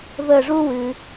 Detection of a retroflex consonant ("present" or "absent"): present